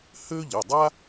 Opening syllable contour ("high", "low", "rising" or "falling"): high